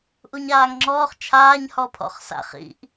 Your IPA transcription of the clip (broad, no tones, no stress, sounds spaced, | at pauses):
ʔ u ɲ aː ŋ ŋ͡ǁ ɔː χ t͡ʃʰ aː ɲ h ɔ pʰ ɔ̰ χ s a̰ χ ḭ ʔ